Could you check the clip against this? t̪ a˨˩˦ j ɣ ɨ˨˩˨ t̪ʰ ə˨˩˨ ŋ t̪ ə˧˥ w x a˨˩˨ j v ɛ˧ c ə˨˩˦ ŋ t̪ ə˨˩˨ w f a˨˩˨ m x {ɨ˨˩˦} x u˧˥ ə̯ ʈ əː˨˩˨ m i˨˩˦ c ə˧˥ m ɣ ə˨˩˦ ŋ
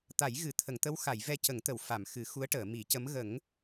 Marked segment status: correct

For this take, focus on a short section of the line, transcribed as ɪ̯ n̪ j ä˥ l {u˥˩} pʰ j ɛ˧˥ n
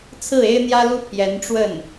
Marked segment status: incorrect: u˥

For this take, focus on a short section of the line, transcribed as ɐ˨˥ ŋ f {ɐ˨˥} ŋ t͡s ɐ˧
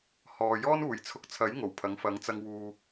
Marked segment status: correct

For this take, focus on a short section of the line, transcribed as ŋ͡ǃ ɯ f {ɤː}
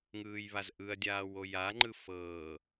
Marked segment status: correct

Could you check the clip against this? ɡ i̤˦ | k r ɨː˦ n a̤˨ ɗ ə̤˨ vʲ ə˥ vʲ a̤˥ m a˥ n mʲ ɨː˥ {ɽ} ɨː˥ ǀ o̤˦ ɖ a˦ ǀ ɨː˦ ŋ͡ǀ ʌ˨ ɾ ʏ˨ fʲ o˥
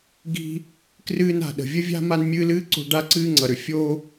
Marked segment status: incorrect: l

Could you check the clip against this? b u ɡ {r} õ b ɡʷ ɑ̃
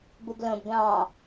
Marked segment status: incorrect: l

